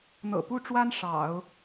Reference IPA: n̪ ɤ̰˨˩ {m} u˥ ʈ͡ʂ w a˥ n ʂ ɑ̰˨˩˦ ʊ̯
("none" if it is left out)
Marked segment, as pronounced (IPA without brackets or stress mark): p